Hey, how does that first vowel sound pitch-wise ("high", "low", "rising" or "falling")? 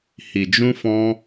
low